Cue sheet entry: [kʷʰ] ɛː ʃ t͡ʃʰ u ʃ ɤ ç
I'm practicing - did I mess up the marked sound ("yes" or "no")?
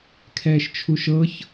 yes